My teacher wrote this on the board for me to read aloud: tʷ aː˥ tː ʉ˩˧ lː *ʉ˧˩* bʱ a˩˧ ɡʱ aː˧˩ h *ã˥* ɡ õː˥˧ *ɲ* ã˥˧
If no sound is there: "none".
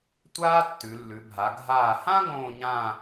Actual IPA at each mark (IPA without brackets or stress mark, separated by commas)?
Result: ʉ˩˧, ã˥, ɲ